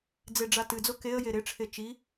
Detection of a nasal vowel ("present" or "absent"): absent